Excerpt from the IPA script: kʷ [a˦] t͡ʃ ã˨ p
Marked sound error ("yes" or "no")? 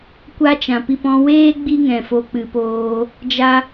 no